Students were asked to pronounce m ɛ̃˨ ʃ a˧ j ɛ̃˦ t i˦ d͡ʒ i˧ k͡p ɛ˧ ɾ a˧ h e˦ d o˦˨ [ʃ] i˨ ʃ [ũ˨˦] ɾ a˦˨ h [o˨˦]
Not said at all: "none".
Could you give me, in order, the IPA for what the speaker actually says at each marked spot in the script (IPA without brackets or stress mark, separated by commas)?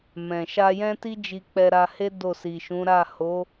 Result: s, ũ˨˦, o˨˦